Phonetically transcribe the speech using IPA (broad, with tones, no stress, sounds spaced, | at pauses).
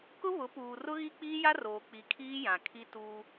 k ʊ˦ β ʊ˨˦ p uː˨ r ʊ˦ ɣ i˦ k͡p iː˦ j a˦ r oː˨ k͡p i˨ kʰ iː˦ j ã˨ kʰ i˦ t uː˦